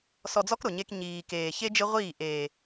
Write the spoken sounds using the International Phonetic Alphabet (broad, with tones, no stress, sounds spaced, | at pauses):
s ɔ˧ d͡z ɔ˦ k ɾ ʊ˨ ɲ e˧ k ɲ iː˨ k eː˨ ç e˦ d͡ʒ ɪ˦ ʁʷ iː˦˨ ʔ eː˨